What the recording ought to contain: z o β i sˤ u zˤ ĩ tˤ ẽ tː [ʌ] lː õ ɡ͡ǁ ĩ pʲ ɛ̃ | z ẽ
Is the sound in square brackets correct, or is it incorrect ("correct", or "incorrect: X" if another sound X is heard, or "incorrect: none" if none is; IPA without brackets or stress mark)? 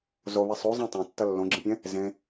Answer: correct